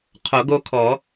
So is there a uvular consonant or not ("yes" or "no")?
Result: yes